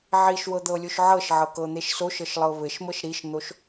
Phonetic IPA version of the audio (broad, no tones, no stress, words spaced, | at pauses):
ʕiʃwɤd̪ɤlʲoʃ ʕɤʃʕɤkɤn̪eʃ soʃɤʃlˠɤ βɘʃmɤʃ ɾiʃn̪oʃ